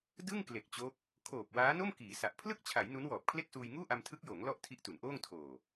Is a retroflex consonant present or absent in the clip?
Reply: absent